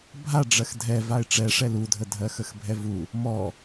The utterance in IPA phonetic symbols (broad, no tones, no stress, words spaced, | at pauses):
bʱa ɖ͡ʐɜxdʱɛ vaɪ̯ʈ͡ʂɛʂɛl udʱə dʱɜxəxbʱɛvu | mɔ